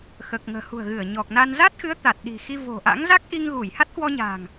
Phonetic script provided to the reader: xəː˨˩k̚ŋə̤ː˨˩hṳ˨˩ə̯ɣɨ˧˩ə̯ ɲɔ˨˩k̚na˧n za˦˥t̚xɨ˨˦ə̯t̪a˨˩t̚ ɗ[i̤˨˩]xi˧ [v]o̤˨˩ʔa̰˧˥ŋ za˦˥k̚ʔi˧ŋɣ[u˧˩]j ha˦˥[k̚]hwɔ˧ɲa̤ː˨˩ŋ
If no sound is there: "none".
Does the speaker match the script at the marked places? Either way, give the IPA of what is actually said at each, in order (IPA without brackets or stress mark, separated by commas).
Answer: i̤˨˩, v, u˧˩, t̚